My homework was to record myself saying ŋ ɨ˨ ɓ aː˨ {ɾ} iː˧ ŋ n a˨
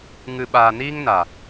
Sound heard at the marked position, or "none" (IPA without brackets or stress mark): n